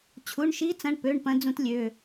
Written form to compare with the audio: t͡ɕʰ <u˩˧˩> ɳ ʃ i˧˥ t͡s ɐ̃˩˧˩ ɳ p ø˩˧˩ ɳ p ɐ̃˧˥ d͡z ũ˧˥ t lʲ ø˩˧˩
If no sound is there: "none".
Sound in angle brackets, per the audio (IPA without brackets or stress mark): u˩˧˩